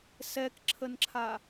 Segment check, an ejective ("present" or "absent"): absent